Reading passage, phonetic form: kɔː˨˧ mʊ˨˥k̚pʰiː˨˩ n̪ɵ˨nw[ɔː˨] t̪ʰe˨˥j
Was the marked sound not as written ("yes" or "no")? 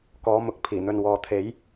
no